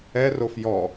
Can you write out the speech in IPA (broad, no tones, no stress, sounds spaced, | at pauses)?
ɛ r o f j ɔ